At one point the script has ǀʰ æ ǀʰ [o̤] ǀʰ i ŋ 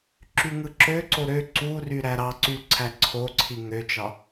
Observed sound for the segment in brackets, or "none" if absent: o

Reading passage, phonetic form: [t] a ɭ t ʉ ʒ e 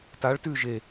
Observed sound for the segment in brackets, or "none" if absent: t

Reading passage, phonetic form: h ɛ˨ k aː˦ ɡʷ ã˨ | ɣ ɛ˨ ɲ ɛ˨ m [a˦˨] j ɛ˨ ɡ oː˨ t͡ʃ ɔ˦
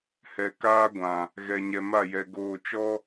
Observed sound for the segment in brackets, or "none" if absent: a˦˨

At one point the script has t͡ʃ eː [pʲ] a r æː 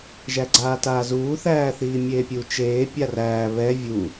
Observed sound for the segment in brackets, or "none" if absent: pʲ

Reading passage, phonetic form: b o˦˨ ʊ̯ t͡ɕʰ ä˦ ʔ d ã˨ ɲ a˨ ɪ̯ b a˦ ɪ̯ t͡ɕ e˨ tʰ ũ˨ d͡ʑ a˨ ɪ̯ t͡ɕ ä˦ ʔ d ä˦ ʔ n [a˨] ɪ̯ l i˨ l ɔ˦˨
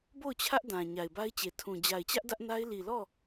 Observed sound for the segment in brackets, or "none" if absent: a˦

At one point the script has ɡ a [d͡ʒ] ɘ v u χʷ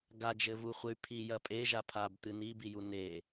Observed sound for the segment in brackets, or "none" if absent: d͡ʒ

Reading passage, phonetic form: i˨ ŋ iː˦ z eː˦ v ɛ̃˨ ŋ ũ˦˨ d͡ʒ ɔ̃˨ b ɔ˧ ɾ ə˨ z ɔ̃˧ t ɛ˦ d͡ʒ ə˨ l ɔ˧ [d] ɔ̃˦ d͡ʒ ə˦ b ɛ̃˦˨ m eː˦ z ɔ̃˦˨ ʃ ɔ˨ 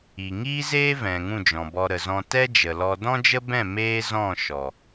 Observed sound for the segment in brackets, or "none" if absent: d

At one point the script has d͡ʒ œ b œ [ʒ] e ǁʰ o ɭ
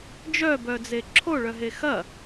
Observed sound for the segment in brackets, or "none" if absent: d͡z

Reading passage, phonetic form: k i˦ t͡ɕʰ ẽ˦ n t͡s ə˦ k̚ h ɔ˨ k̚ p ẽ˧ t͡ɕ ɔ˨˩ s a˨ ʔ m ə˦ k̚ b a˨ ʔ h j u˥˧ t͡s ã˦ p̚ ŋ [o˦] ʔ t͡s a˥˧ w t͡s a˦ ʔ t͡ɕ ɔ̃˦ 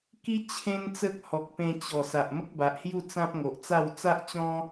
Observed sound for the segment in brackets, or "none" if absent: o˨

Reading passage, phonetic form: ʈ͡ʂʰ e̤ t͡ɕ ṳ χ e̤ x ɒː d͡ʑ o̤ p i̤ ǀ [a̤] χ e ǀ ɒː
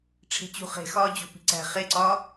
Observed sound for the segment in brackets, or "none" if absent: æ̤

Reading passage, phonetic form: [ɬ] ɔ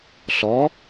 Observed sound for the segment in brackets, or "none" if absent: ɬ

